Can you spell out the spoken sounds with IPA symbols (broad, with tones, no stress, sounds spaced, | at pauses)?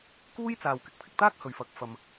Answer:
k uː˥ j t͡s aː˨ w k ɪ˨ k̚ pʰ ɪ˧ k̚ t̪ aː˥ k̚ h ɵ˨ ɥ f ɐ˨ k̚ f ɐ˨ m